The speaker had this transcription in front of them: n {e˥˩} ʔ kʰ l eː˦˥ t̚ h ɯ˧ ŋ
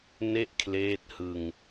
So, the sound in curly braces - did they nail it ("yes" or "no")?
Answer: yes